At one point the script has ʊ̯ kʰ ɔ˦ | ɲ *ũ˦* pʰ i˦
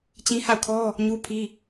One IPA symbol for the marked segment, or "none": u˦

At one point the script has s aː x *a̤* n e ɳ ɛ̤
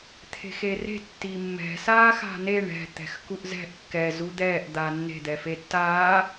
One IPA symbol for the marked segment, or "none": a̤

